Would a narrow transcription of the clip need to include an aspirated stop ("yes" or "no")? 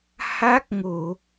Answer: no